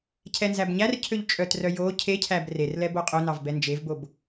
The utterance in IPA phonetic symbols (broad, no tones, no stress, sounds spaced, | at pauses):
cʰ ɛ n z æ b ɲ æ r cʰ ø ʎ t͡ʃʼ œ t r œ j o cʰ e cʰ æ b r e r l ɛ b o qʼ o n ɑ v b ɛ n d͡ʒ e v b o b